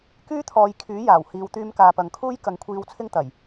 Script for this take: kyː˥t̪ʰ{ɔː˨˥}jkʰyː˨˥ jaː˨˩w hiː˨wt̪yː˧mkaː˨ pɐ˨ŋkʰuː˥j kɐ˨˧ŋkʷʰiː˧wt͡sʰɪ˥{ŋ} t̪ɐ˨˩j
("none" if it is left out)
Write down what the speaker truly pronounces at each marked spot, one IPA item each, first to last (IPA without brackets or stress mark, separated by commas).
ɔː˨˧, ŋ